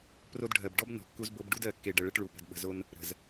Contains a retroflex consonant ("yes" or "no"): yes